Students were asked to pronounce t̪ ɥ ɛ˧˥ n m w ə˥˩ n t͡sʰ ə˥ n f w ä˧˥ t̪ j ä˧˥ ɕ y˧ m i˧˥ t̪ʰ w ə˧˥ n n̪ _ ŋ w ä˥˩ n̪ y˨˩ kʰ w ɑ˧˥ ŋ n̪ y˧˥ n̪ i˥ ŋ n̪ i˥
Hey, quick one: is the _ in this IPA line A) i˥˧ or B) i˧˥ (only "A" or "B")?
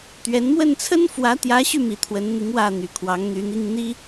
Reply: B